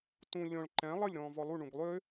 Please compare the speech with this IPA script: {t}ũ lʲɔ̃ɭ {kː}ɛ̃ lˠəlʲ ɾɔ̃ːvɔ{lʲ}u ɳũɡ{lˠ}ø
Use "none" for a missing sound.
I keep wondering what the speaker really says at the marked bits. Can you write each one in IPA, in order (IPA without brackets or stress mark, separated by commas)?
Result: t, ǃ, lˠ, lˠ